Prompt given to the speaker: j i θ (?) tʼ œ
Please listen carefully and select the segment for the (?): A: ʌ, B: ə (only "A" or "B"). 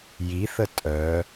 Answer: B